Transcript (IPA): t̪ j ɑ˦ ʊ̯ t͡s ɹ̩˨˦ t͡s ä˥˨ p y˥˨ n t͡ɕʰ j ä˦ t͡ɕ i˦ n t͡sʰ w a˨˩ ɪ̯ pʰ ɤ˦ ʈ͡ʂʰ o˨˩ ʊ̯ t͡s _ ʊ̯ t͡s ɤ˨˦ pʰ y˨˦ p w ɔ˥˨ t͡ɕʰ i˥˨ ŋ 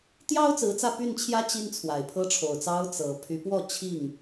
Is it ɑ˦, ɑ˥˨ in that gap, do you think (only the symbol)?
ɑ˦